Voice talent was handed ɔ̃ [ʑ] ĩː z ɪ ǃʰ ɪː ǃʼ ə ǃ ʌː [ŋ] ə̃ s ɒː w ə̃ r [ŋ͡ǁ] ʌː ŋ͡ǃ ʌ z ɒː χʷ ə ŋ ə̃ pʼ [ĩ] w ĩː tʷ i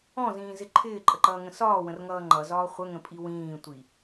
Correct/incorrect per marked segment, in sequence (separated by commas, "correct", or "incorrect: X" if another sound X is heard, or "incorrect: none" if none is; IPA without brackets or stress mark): incorrect: z, correct, incorrect: ŋ, incorrect: i